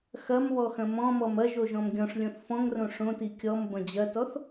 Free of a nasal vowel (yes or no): no